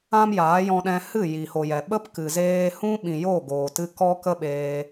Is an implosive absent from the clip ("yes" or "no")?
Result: no